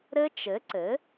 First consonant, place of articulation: alveolar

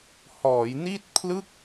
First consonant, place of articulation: glottal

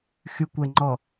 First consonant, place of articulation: velar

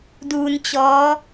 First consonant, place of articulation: alveolar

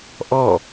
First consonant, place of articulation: glottal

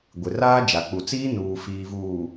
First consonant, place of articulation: velar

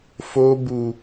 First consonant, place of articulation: labial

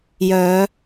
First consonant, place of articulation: palatal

